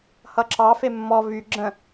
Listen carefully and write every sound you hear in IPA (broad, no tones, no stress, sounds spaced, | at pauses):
h ʌ ǁ ɑ f e mː ɔ v y ɡ͡ǁ ə̃